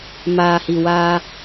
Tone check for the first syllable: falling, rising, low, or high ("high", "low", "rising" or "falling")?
low